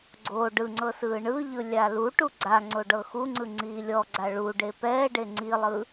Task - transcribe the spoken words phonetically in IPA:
ɡ͡ǀ o ɖ ɯ ŋ͡ǀ ɤ s ɯː ɳ ɯ ʎ ɯ lʲ a l u ʈ u ɡ͡ǀ a ŋ͡ǀ o ɖ ɤ x u ŋ͡ǀ ɯ ŋ͡ǀ iː lʲ ɔ ɡ͡ǀ a ɭ u ɖ e p ɛː ɖ e ŋ͡ǀ i lˠ ɯ

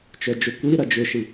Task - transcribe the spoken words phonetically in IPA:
t͡ʃ œ d͡ʒ o kʷ i ɾ ɐ d͡ʒ ʏ ʃ i

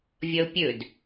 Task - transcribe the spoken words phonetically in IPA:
vʲ ʌ ʊ̯ pʲ ɵ d

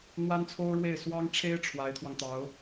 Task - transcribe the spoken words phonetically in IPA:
n̪ w a˥ n t͡sʰ o˥ ʊ̯ ɻ w e˥˩ ɪ̯ s w ɑ˥ ŋ ʈ͡ʂʰ e˥ ɪ̯ ʈ͡ʂʰ w a˧˥ ɪ̯ t̪ʰ w ɑ˧ ŋ t̪ ɑ˧˥ ʊ̯

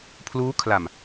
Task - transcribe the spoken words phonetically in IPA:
pʰ l uː˦˥ kʰ l a˨˩ m

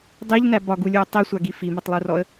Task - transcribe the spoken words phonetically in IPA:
dˤ i ʎ n æ b ɒ ɡ u lʲ u ə̯ tˤ i sʷ a ɡ i f i m ɒ tˤ lˠ u r ɔ ə̯

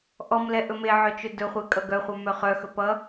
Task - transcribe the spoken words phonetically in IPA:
ʔ ɔ m l ɛ ʔ ɵ m e ʕ œ t͡ʃ ɵ d ɵ χʷ e kʼ ʌ ɡ œ χʷ œ m œ χ œ x ɵ p ʌ

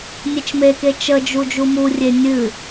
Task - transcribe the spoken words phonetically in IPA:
nʲ e t͡ʃ m e k e t͡ʃ ə d͡ʒ u d͡ʒ u m u rʲ e nʲ ɨ

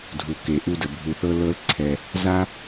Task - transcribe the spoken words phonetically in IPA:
dʱ u˨ k e˨ ʔ u˧ d ə˨ bʱ u˧ θ ɤ˦ l ɤ˦ l ǀʰ ɛ˧ | z a˦

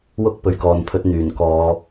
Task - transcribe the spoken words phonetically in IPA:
w ʊ˥ k̚ p ɵ˨ ɥ k ɔː˨ n pʰ ɵ˧ t̚ n̪ yː˨˩ n k ɔː˨˧

